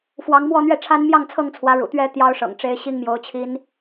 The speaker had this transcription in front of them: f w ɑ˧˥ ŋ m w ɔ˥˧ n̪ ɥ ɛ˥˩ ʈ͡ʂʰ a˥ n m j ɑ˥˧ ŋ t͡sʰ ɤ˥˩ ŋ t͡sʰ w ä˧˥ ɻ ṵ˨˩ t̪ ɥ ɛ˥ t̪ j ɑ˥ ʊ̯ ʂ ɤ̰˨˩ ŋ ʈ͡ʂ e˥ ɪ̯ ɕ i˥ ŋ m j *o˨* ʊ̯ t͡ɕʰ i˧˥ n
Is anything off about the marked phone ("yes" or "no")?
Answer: yes